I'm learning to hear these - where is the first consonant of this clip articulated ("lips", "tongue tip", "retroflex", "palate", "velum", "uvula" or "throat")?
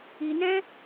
tongue tip